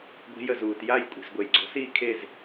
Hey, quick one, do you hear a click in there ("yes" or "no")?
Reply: yes